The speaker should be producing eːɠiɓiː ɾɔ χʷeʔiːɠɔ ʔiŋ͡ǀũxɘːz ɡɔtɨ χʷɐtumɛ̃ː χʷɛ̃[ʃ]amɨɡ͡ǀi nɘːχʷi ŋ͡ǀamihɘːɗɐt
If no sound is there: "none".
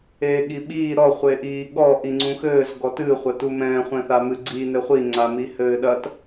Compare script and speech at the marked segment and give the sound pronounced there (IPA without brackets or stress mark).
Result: θ